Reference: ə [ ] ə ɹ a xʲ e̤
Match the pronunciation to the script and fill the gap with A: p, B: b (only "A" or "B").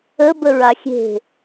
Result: B